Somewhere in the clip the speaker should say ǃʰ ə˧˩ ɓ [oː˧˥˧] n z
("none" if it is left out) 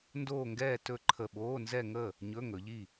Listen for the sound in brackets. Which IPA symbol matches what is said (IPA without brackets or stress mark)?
oː˧˥˧